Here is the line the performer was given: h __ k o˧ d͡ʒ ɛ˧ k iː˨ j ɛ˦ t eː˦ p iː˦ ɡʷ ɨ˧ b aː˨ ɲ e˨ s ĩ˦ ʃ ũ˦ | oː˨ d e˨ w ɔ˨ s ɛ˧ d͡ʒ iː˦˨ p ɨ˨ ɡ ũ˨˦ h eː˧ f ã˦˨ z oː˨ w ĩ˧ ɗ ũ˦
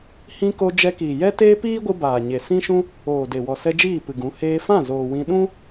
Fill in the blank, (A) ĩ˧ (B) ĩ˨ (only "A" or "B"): A